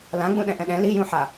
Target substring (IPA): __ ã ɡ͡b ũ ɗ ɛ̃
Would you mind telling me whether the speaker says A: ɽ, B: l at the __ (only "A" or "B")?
B